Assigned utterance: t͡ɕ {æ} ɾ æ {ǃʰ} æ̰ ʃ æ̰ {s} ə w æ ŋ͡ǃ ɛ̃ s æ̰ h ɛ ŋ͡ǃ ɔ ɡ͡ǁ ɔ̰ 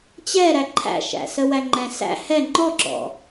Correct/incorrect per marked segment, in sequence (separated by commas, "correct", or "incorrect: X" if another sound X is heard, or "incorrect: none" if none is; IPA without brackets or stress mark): incorrect: ɛ, correct, correct